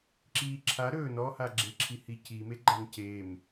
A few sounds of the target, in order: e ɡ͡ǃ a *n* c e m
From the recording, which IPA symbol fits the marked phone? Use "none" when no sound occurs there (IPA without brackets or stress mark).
n